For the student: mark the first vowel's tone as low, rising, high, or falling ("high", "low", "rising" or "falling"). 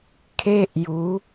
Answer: high